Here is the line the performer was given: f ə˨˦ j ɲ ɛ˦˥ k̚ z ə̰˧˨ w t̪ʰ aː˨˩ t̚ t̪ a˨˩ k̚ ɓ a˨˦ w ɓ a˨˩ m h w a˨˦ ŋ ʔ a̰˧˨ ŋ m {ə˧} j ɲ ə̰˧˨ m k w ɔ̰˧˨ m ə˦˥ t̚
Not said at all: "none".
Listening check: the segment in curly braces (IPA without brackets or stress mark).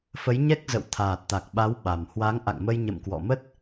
ə˧